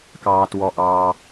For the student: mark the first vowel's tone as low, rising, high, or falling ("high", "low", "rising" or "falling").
low